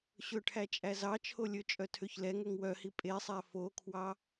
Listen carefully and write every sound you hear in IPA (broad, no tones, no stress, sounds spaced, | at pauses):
ɕ ɵ ʈʰ æ t͡ʃʼ æ z ɑ t͡ʃʰ o lʲ ɵ t͡ʃʼ œ tʰ ø ç l ɛ ŋ ø ŋ w œ h i pʼ e sˤ æ f o kʰ w ɑ